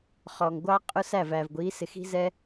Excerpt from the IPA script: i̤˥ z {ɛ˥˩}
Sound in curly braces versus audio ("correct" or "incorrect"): incorrect